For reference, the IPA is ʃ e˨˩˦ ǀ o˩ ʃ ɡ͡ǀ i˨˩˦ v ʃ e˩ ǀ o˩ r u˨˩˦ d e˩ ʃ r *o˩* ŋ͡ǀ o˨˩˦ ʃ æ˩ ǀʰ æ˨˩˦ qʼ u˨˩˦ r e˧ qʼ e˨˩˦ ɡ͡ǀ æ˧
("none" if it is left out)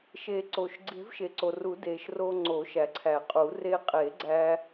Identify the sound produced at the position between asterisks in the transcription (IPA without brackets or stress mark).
o˧